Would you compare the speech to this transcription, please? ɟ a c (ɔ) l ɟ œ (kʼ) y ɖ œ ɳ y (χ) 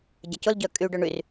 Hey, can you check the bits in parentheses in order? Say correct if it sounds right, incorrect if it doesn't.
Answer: incorrect: ʊ, correct, incorrect: r

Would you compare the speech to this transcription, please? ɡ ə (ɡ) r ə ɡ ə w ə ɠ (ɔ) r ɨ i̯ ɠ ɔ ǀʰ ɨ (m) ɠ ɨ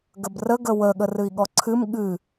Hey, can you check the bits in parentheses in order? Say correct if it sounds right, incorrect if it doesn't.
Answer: incorrect: b, incorrect: ə, correct

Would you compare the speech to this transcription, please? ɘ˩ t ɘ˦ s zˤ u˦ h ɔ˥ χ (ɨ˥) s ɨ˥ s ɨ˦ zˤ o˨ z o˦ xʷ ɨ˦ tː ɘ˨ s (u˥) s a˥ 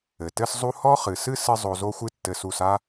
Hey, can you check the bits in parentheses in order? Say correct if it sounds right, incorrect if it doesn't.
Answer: incorrect: ɨ˩, incorrect: u˨

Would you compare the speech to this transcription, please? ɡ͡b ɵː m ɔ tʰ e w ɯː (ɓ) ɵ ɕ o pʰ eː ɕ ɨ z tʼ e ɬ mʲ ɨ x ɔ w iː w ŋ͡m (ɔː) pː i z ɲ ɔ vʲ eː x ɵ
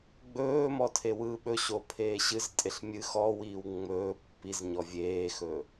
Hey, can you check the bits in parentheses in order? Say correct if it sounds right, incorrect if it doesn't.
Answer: correct, incorrect: ɵː

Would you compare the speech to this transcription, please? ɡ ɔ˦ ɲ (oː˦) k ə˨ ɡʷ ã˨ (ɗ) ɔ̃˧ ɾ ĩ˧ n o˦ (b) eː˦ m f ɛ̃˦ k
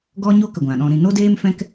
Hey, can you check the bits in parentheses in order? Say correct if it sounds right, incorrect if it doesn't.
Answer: incorrect: o˦, correct, incorrect: d

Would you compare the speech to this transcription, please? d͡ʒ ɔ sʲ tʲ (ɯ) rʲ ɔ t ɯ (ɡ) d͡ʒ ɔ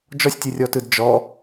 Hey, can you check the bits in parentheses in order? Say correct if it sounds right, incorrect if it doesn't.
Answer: correct, incorrect: d

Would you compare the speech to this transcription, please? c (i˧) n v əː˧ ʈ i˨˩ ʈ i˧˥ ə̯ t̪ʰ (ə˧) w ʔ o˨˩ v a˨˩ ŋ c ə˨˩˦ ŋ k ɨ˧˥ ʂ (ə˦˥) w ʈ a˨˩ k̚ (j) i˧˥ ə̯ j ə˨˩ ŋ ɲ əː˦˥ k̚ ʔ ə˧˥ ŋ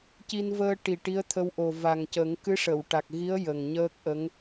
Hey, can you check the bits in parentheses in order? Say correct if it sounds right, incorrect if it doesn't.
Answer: correct, correct, incorrect: ə˨˩˨, incorrect: ɣ

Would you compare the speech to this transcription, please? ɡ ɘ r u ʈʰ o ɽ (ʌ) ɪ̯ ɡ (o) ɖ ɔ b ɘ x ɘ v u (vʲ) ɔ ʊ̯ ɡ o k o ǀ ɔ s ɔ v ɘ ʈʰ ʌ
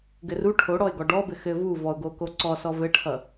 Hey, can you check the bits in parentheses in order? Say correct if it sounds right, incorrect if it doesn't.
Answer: incorrect: ɔ, incorrect: ɔ, incorrect: v

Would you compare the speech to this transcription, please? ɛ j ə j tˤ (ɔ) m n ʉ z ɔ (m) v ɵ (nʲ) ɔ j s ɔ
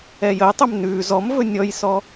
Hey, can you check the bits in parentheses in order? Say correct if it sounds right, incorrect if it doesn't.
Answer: incorrect: ɵ, correct, correct

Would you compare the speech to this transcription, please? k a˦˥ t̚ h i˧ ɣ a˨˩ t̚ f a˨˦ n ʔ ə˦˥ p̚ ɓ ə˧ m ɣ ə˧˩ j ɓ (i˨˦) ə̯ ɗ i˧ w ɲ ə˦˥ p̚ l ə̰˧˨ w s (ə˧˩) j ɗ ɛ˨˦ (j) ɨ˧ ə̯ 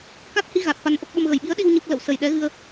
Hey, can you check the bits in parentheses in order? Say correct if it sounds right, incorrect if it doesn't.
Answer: correct, correct, incorrect: ɣ

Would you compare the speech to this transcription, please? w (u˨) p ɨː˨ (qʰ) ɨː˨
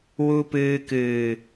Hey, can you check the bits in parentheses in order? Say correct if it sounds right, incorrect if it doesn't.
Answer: correct, incorrect: k

